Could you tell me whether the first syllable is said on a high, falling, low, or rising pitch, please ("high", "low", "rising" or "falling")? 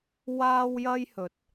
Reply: high